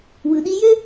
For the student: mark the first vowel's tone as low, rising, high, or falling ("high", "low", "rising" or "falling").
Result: low